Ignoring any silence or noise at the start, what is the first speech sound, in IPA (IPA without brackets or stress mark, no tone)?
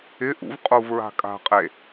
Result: ɪ